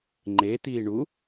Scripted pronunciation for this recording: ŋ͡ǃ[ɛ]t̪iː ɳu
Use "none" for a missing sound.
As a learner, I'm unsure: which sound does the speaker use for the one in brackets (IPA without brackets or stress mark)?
e